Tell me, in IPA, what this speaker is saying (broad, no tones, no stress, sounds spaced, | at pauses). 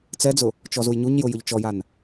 t͡s ɛ d͡z ʊ | t͡ʃ ɔ z u j ɲ u ɲ j ʊ j ʊ ʎ t͡ʃ ɔ j a n